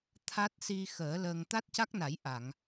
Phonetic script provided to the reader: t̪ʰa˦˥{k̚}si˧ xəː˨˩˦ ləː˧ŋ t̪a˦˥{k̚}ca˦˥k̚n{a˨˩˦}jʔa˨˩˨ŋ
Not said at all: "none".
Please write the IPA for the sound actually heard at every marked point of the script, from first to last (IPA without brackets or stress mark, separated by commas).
t̚, t̚, a˨˩˦